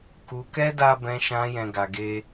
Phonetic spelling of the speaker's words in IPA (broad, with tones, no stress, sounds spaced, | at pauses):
k u˧ k ɛ˦ d a˦ b ɛ̃˧ ʃ ã˧ j ɛ̃˧ ɡ a˧ ɡ e˦